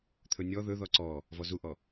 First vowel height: mid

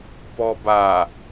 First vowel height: mid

